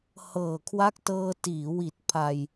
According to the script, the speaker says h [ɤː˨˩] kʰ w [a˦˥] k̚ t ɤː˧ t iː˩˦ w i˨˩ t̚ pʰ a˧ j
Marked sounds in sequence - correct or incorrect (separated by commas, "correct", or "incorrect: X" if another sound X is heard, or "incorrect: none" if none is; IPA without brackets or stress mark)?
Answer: correct, correct